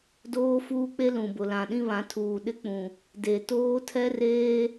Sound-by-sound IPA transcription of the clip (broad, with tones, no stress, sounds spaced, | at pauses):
d oː˦ f uː˦ k͡p e˦ l ũ˨ b ʊ˨ l ã˨ ɗ ĩ˦ β ã˨˦ tʰ uː˨ ɗ ɪ˦ k͡p ũ˨ | d e˨ t oː˦ tʰ ɛ˦ r eː˦